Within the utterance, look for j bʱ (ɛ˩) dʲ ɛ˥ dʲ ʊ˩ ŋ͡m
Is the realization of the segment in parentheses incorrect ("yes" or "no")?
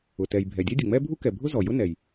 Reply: no